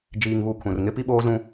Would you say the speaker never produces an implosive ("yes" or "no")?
no